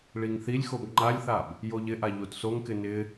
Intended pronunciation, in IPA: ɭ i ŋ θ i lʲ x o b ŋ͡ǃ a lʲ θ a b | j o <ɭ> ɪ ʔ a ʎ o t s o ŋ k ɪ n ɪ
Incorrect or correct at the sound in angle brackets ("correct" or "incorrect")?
incorrect